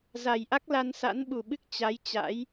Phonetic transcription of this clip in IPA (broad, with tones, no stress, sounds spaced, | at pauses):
z a˨˩ j ʔ a˦˥ k̚ l a˧ n s a̰˧˥ n ɓ u˨˩ ɓ ɨ˦˥ k̚ t͡ɕ a˨˦ j t͡ɕ a̰˧˥ j